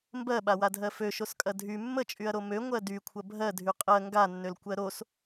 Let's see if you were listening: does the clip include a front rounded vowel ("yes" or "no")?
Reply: yes